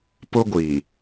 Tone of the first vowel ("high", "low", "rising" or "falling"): high